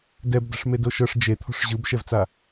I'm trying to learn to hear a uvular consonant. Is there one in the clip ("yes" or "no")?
no